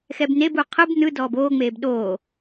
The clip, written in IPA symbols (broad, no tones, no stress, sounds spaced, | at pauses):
x ɛ b n e b u qʰ ɯ b n ɯ d ɔː b oː ŋ͡m eː b ɗ oː